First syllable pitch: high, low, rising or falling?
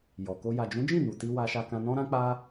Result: low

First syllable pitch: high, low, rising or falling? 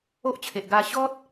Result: high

